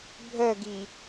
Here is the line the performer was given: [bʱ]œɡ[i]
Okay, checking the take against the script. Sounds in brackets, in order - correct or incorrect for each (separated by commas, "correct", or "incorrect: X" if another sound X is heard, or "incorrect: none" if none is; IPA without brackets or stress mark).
correct, correct